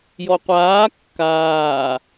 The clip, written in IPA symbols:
jɔqʷaː kːaː

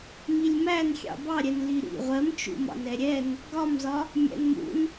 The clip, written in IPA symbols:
milʲmæn xʲɑ̰bɑɾʲɛn liɾḭ ʁʷɜmt͡ʃṵmɑ̰n ɛɾʲɛn | ɡɒmzɒ | mʲæ̰nmṵn

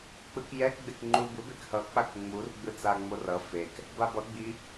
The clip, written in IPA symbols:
k͡pɯkjɛk ɡ͡bekŋ͡ǃubɯ bekhʌ k͡pakŋ͡mur ɡ͡bɯt͡saŋ͡morʌ fek | babʌ ɡ͡bi

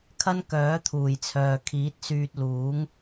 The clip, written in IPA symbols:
kʰɐ˥nkœː˨˥t̪ʰuː˨˩jt͡sʰœː˨ kʰiː˨˥t̚syː˧t̚luː˨˥ŋ

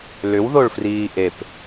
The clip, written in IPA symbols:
lʏwðoɭfriː ʔep

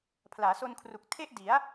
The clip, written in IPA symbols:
pʰlaː˩˦so˧nkʰru˨˩k̚ tʰe˥˩ʔ di˩˦a̯

